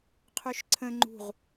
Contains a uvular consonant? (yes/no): yes